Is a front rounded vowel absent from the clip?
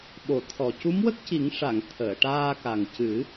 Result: yes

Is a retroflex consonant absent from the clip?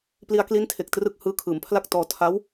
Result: yes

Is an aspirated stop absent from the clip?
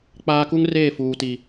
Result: yes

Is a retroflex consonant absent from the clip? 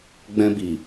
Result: yes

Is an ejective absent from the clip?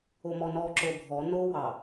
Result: yes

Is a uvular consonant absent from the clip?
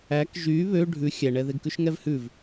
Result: yes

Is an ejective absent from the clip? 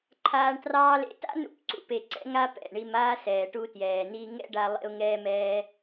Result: yes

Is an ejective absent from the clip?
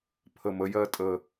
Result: no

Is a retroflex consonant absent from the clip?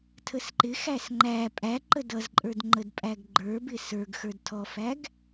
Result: yes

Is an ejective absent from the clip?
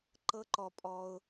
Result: no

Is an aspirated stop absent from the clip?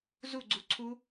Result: no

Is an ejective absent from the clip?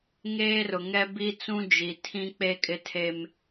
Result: no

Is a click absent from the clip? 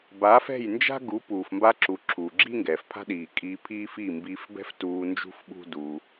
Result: no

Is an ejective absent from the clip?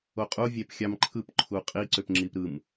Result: no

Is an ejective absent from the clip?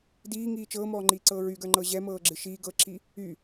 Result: yes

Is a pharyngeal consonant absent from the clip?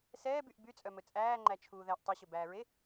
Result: yes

